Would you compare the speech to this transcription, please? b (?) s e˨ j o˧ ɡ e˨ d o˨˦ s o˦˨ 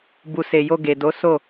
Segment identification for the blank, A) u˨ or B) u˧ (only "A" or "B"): A